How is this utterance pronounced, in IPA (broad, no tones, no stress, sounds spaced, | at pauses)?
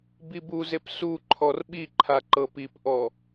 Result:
b i b u z e p s u ǃʰ ɔ r ɓ i ǃʰ a ǃ ɤ p i p ʔ ɔ